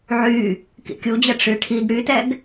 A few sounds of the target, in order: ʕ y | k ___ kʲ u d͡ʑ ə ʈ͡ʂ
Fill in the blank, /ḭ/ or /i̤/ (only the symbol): ḭ